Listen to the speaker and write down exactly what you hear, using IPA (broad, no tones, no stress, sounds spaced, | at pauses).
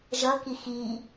ʒ ʌ k i x i